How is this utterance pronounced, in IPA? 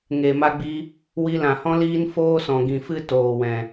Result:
ŋe˨ma˧ɡ͡bi˧ | wi˧lã˨hɔ̃˦ liː˦n foː˦sɔ̃˨ɡĩ˨fɨ˦ toː˨wɛ̃˨

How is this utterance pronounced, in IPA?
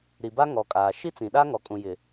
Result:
ɾi˨ba˦ŋɔ˨kʼaː˨ ʃi˦t͡sĩ˨ɗa˦ ŋɔ˨kʼũ˨jɪ˨

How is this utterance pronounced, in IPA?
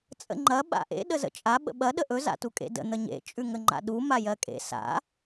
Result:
t͡sʼə̰ŋ͡ǃɐ ɓa̰ʔḛ ɗəzə̰t͡ʃʼa ɓə̰ɓɐ ɗəʔɵ za̰tukʼḛdə̰ n̪əɲḛ t͡ʃʼʉŋəŋ͡ǃa̰ɗu majɜkʼḛ sa̰

